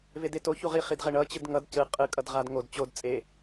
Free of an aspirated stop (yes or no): yes